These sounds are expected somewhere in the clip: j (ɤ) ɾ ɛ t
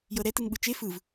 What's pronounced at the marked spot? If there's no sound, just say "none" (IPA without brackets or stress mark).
ɤ